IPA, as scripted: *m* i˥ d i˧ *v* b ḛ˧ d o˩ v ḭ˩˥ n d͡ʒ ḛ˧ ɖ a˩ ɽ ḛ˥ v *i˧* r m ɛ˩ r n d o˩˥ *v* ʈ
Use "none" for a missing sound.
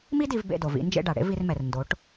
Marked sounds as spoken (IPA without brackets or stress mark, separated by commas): m, v, i˧, none